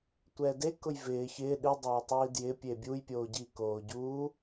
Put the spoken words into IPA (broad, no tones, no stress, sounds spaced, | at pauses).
tʷ ɛ d e k ʊ j v ɪː ç ɪː ɗ i dˤ a j tˤ iː d j ɪ pʲ e bʲ u j pʲ oː ɟ i k oː ɟ u